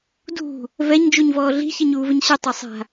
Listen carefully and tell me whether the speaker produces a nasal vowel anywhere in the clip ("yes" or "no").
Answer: no